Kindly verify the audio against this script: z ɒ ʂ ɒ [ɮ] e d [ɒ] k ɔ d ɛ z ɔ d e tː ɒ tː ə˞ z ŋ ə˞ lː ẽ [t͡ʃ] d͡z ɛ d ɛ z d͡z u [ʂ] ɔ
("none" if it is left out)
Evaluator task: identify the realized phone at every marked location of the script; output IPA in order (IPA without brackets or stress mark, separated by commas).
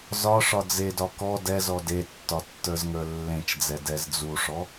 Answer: d͡z, ɒ, t͡ʃ, ʂ